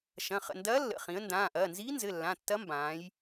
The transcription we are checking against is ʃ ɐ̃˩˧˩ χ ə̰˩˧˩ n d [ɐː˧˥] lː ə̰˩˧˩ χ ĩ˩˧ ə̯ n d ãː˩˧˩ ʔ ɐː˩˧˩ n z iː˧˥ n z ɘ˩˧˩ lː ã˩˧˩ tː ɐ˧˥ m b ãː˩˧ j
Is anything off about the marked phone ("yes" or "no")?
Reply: no